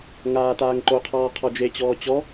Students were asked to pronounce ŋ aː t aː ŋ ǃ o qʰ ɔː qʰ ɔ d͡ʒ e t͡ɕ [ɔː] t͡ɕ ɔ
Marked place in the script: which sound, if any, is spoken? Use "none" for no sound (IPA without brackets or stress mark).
ɔː